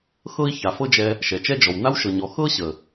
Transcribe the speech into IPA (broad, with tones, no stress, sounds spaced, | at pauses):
x ɤ˦ i̯ ç a˨ f ɤ˦ d͡ʒ ɛ˧ | ʃ ɛ˨ t͡ʃ ɛ˦ d͡ʒ ɔ˨ w n a˦ w ʃ ɤ˨ ɲ ɔ˨ x ɤ˦ ɕ ə˨